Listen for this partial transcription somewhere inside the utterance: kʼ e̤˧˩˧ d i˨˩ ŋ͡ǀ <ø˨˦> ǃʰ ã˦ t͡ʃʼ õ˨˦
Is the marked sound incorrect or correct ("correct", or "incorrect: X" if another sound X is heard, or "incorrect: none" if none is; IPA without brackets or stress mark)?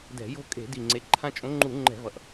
incorrect: e˨˦